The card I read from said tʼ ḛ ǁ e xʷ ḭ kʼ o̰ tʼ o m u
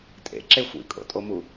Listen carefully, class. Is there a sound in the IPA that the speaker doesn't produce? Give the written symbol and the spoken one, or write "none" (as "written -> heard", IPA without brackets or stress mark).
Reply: none